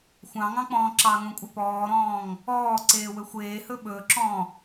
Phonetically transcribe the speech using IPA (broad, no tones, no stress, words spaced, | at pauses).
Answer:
xʷɑ̃ŋɑ̃k͡pɔ̃ː ǁɑŋũkʷʼə pɔːɾɔ̃ːŋ | ɔːǀeːwɵ xʷeːhɵ ɓɵǁɔ̃